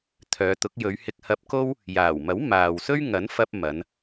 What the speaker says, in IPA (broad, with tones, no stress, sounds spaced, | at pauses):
t̪ʰ œː˨˧ t̪ ʊ˨˥ k̚ j ɵ˨˧ ɥ h ɪ˧ k̚ h ɐ˧ p̚ k o˥ w | j aː˨˩ w m ɐ˨˥ w m aː˨ w s ɵ˥ ɥ ŋ ɐ˨˥ n f ɐ˧ p̚ m ɐ˨˧ n